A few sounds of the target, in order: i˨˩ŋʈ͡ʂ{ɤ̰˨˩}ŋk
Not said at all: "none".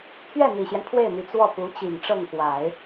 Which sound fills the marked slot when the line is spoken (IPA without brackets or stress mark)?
ɤ˥˩